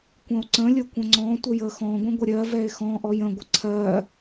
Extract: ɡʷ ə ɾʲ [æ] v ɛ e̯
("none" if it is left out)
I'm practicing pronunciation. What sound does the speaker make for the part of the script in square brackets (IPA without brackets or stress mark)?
ɜ